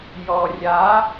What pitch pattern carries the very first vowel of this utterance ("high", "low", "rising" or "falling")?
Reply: low